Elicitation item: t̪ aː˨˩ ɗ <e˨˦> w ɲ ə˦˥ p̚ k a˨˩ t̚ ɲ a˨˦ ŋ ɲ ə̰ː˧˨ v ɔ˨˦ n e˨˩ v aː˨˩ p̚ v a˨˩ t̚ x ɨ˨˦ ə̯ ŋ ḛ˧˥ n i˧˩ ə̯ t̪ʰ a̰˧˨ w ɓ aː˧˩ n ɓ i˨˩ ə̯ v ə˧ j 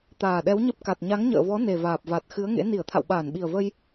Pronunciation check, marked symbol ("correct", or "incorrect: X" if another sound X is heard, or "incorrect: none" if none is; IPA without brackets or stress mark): incorrect: ɛ˨˦